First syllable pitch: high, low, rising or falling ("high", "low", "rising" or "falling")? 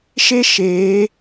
high